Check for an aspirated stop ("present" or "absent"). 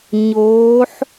absent